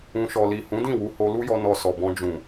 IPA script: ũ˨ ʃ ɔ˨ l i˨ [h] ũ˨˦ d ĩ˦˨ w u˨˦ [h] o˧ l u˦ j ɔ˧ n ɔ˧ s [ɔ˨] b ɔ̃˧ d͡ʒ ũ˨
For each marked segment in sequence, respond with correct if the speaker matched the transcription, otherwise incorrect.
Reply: correct, correct, correct

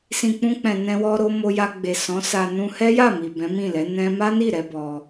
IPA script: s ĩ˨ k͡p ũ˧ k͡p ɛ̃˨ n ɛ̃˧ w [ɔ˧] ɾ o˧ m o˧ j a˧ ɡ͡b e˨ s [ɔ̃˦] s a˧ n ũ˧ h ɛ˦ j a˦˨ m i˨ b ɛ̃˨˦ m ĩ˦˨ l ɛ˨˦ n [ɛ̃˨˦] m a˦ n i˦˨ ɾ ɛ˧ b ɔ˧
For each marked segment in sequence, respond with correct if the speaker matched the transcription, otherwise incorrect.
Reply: correct, incorrect: ɔ̃˨˦, incorrect: ɛ̃˧

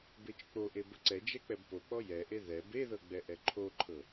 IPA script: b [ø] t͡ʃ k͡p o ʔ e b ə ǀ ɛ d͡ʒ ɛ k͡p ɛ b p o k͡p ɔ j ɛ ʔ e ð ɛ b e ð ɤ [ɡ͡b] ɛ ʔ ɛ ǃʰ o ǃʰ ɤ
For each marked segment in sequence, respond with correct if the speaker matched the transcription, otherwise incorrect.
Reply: incorrect: e, correct

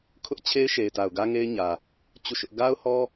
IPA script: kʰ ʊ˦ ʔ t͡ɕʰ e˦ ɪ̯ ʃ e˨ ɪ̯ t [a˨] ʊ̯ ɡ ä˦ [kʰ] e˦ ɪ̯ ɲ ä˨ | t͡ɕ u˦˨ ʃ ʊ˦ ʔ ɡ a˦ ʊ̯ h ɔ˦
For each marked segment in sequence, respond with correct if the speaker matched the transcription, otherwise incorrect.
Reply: correct, incorrect: ŋ

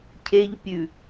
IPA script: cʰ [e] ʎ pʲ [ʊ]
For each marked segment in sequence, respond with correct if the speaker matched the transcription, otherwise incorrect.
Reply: correct, incorrect: ʉ

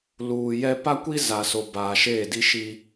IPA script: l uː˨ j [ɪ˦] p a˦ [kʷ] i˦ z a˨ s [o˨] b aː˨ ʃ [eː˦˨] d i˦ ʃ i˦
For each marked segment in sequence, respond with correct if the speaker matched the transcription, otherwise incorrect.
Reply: incorrect: ɛ˦, correct, correct, correct

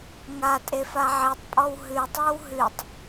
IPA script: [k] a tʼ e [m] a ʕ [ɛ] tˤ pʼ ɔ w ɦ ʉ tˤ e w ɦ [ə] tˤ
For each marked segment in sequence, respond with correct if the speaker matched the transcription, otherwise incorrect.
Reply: incorrect: ŋ, incorrect: f, incorrect: e, incorrect: ʉ

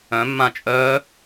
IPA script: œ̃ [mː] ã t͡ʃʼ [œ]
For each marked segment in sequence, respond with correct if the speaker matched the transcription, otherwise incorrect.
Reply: correct, correct

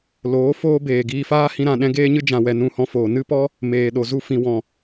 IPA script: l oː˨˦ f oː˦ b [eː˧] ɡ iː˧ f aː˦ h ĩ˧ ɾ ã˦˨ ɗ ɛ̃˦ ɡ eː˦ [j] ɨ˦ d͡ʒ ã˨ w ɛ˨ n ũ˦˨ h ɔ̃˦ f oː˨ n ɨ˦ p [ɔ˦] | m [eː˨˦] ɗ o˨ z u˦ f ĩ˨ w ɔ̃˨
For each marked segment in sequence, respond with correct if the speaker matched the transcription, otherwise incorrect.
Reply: incorrect: eː˨, incorrect: ɲ, correct, incorrect: eː˨

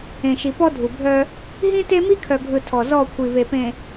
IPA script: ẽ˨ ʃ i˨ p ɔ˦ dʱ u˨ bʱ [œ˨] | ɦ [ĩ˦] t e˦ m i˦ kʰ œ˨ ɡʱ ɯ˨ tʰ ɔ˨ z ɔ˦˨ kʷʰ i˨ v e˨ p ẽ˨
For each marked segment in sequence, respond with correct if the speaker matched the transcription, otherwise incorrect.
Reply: incorrect: œ˦, correct

